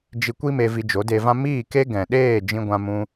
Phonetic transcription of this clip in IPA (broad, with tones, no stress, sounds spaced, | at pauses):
d͡ʒ i˧ kʷ i˦ m e˧ v i˧ d͡ʒ o˨˦ d e˧ v ã˦ m iː˦˨ k e˦ ɡ ɛ̃˨ ɗ eː˦˨ d͡ʒ ĩ˧ ɡʷ ã˧ m ũ˧